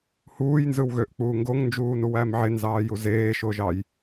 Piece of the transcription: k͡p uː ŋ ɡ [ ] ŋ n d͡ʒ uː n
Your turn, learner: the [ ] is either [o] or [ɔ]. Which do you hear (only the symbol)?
o